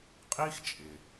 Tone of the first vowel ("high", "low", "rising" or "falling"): high